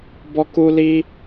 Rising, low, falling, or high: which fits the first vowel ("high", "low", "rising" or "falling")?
high